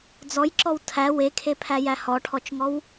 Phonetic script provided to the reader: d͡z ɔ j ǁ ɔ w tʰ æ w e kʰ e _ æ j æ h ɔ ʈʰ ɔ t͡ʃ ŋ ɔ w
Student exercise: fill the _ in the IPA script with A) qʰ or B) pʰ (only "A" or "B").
B